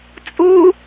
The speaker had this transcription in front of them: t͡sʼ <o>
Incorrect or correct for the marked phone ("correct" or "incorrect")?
incorrect